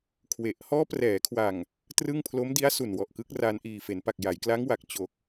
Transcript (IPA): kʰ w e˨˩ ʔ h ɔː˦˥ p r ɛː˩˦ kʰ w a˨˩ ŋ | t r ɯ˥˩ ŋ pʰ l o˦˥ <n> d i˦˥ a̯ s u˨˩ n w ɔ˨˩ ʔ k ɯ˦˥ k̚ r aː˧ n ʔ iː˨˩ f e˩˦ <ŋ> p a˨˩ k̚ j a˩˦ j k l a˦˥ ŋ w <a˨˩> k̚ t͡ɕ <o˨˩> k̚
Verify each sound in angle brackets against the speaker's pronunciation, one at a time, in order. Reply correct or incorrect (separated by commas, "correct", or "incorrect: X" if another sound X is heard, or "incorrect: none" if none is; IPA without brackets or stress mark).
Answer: incorrect: m, incorrect: n, correct, correct